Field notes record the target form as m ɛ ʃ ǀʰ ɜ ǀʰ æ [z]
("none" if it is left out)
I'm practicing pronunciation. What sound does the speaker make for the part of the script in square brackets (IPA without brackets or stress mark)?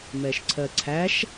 ʃ